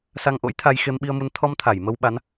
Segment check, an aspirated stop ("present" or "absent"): present